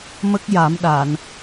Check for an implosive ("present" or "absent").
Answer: present